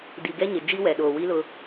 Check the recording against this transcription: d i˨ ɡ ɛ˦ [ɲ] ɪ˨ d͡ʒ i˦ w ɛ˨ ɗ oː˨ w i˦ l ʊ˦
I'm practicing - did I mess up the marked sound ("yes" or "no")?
no